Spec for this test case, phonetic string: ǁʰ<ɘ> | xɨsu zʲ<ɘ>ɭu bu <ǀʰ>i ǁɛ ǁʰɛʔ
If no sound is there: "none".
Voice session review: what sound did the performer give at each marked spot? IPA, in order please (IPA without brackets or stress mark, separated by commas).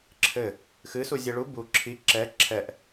ɘ, ɛ, ǁʰ